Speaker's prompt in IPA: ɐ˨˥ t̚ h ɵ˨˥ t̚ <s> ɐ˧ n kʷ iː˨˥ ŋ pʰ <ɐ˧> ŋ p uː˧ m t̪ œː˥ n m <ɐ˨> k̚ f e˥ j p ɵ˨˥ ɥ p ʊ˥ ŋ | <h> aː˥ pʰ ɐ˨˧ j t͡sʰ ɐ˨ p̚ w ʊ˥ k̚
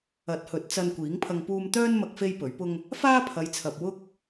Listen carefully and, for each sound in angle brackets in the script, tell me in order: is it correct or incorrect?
incorrect: t͡s, correct, incorrect: ɐ˧, incorrect: f

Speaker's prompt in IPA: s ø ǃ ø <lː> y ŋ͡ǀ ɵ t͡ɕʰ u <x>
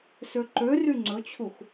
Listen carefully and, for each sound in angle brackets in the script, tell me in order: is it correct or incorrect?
incorrect: r, correct

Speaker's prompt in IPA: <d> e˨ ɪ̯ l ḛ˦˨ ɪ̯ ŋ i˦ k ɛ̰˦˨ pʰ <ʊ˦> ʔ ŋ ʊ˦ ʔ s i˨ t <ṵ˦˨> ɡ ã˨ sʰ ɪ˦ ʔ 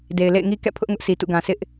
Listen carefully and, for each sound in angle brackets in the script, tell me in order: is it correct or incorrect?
correct, correct, correct

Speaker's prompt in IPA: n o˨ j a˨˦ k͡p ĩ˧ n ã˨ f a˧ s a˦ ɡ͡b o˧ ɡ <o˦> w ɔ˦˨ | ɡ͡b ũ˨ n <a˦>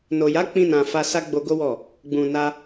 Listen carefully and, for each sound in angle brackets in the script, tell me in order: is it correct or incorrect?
correct, incorrect: a˧

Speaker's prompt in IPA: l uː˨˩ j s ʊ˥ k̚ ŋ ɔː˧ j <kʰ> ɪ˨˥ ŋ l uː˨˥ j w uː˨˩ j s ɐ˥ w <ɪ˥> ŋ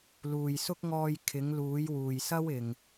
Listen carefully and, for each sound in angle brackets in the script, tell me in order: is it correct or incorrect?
correct, incorrect: ɪ˨˩

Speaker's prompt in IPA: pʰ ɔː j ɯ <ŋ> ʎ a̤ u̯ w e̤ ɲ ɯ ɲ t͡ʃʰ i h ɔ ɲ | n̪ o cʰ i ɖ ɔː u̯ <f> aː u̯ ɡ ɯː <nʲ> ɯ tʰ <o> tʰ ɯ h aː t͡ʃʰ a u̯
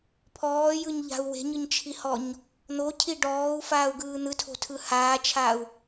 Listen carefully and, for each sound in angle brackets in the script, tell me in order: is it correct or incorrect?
incorrect: ɲ, correct, incorrect: n̪, incorrect: o̤

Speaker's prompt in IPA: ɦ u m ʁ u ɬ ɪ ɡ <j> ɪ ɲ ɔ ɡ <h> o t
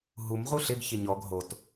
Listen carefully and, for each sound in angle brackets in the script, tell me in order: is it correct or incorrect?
incorrect: ç, incorrect: ɦ

